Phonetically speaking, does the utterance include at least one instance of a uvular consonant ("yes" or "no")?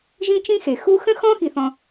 no